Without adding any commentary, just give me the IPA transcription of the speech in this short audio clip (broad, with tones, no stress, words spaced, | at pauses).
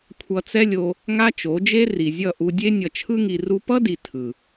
kʷʰʌ˧t͡sɛ˦lʲo˧ | ŋa˦t͡ʃo˨˦ d͡ʒe˦ ri˨zʲʌ˦˨ ʔu˧dʲe˦ nʲʌ˨t͡ʃʰɯ˧ŋi˨ ru˧pʌ˦di˨ tʰɯ˨